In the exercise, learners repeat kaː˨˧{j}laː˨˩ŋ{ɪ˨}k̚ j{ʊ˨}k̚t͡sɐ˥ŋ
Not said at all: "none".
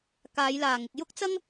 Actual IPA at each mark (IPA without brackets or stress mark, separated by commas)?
j, ɪ˨, ʊ˥